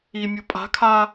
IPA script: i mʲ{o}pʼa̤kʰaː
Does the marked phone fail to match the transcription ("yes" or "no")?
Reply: no